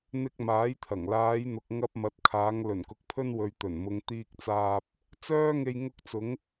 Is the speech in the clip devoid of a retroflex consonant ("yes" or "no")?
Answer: yes